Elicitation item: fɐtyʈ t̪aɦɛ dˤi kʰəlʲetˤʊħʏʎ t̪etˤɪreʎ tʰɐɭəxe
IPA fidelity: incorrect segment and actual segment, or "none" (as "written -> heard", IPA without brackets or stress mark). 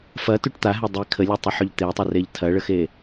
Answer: none